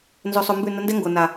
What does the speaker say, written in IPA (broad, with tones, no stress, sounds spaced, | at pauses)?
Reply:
n z o˧ sˤ o˧ m b ʉ˦˨ n ə˧ n d ɛ˦ ŋ ɡ o˨ n a˨